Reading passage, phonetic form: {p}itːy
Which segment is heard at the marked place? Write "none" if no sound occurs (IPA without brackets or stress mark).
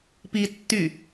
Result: p